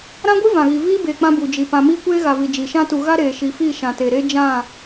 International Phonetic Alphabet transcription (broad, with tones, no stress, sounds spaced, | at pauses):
ɾ ã˦ ɡʷ i˦ v ã˨ ɣ i˨ v iː˦ b e˨ k͡p ã˦ b u˨ d͡ʒ i˨ p ã˨ m iː˦ kʷ eː˦ ɣ a˨ v i˨ d͡ʒ i˨ ʃ ã˦ t u˨ ɣ a˦ ɾ eː˨ ʃ i˨ f i˦˨ ʃ ã˨ t e˨ ɾ eː˦ d͡ʒ ã˦˨